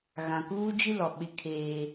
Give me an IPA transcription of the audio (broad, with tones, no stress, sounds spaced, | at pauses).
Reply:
ɣ ã˨ k uː˦ d͡ʒ i˦ l ɔ˨ ɓ ɪ˦ kʰ eː˦